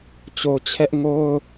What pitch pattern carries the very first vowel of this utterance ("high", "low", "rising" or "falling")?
low